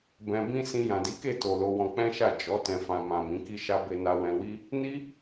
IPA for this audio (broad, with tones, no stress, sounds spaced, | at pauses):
b ɛ̃˧ b ĩ˦ s ĩ˧ j ã˨ d i˨˦ k e˦˨ t o˨ l o˧ w ɔ̃˧ k͡p ɛ̃˦ ʃ a˦˨ d͡ʒ ɔ˨˦ t ɛ̃˧ f ã˧ m ã˨ m ĩ˨˦ k i˦ ʃ a˦ b e˧ n a˧ w ɛ̃˧ w i˦ | n i˦